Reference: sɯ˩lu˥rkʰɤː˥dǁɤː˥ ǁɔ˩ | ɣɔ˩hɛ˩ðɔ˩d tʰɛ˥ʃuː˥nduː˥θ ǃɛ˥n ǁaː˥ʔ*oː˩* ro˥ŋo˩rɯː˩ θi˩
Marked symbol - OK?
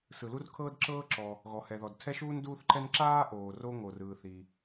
yes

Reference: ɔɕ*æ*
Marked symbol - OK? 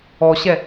no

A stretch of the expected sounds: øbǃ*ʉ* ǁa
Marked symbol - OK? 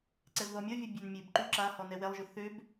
yes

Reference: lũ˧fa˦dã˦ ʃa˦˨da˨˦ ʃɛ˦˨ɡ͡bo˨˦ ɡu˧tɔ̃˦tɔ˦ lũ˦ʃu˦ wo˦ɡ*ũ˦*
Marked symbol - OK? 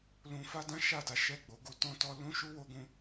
yes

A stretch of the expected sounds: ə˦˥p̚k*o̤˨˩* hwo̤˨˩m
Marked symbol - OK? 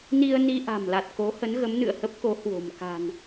no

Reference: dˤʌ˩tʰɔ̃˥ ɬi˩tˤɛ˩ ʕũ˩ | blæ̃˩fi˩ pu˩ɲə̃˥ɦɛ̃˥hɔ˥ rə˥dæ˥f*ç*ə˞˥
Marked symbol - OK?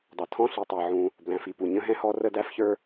yes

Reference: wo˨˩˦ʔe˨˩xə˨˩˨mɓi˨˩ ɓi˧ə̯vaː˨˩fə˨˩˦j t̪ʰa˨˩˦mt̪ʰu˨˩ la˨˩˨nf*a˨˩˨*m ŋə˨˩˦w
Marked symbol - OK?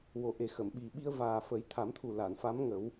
no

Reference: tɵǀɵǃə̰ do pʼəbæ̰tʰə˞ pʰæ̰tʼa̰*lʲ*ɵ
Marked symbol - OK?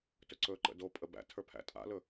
no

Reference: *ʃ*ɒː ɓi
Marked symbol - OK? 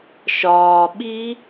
yes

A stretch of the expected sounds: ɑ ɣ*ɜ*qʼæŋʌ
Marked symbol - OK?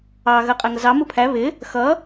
yes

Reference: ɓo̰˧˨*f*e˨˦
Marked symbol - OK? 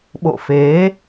yes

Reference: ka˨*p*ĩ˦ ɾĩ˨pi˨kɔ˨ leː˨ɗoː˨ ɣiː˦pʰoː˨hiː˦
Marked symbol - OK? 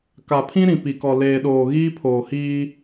no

